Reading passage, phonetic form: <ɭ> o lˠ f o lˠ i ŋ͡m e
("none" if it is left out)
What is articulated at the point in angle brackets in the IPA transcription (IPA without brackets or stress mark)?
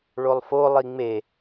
ɭ